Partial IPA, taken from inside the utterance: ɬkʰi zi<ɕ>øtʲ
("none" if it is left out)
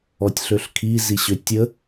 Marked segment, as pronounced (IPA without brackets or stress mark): ɕ